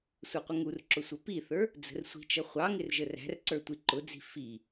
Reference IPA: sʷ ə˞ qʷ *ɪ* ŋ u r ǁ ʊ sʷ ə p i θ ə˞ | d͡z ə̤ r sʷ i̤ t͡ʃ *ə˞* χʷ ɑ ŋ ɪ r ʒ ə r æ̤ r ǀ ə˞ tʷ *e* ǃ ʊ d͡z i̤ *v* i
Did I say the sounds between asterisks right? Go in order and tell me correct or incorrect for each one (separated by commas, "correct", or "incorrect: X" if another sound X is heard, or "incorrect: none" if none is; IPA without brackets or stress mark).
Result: incorrect: ə, incorrect: ʌ, incorrect: i, incorrect: f